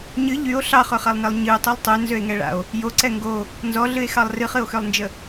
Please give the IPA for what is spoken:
ɲ ɨ ʎ y o̯ ɬ ɑ χ ø χ a lˠ n ɛ lˠ ɲ ɨ o̯ tˤ ø lˠ tˤ ø n z ø e̯ ŋ ɛ ɭ a̰ o̯ | j o ǀ ɛ ŋ ɡ o | n z ɔ ɮ ɨ e̯ x ɑ lˠ r ɨ χ ɨ o̯ x ø lˠ n d͡ʒ ə

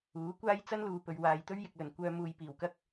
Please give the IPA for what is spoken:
uː˨˥ kʷ aː˥ j t͡s ɐ˥ n l uː˨ p ɵ˨ ɥ w aː˨ j t̪ ɵ˥ ɥ j ɪ˨ k̚ l ɵ˨˩ n kʷ œː˧ m uː˨ j p iː˨˩ w k ɐ˥ k̚

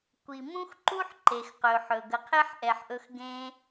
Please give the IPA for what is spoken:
kʷ i˨ m ũ˦ x ǃ u˦ ħ ǃ e˨ x q ɵ˨ ħ ɵ˨ ɡ ə˨ qʰ e˦ ħ ʔ ɛ˨ ħ ʔ ɵ˧ x ɡ ẽ˦

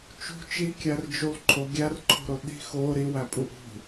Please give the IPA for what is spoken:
t͡ʃ ṳ t͡ʃ i kʲ æ r d͡ʒ u lˠ ǃʰ o ɡʲ æ r ǃʰ o̤ ɾ o ɗ i̤ x o ɾ i w æ pʼ u ʔ ṳ

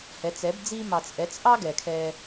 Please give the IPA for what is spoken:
h ɛ˨˦ t͡s ɛ˨˦ b d͡z i˧ m ɑ˨ t͡s ʔ ɛ˨˦ t͡s ʔ ɑ˦ ɡ ɛ˨ kʰ ɛ˧

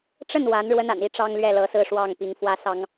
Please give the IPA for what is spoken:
ʈ͡ʂ ə˥˩ n w a˧˥ n ɻ w ə˥ n a̰˨˩ n i˧˥ ʈ͡ʂ ɑ˥ ŋ l ɥ ɛ˥˩ l ɤ˧˥ s ɹ̩˥˧ ʂ w ɑ˥˩ ŋ p i˧˥ ŋ f w ä˥ s ɑ˥ ŋ

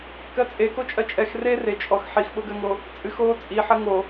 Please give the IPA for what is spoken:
k ɜ t͡sʼ e k o t͡ʃʼ ɜ t͡ʃʼ ɛ x r e r e t͡ʃʼ ɔ x ħ i x ɓ o ɡ ɜ ŋ o | t͡sʼ ɨ x oː t͡sʼ i ħ ɜ ŋ o

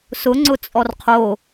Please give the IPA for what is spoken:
s ʊ ŋ͡ǀ ʊ t͡sʼ ɔ r qʰ o

